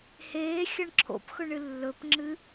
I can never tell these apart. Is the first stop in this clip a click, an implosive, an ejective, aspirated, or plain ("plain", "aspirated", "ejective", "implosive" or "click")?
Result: click